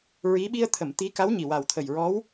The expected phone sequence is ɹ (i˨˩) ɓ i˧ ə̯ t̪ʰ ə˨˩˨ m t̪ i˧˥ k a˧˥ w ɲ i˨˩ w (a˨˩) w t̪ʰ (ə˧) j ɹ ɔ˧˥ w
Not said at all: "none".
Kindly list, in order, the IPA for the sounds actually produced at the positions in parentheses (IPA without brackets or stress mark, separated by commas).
i˧˥, a˨˩, ə˨˩